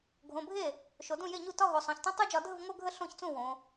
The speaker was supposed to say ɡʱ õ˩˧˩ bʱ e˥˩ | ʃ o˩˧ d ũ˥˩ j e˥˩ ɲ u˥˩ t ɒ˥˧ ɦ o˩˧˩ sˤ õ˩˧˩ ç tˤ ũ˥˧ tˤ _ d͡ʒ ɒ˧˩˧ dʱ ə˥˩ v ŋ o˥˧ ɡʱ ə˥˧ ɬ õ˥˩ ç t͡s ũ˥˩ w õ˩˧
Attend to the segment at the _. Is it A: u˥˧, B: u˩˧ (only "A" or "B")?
A